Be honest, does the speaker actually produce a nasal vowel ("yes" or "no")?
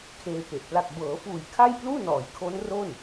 no